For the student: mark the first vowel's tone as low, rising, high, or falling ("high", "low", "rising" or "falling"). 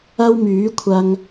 high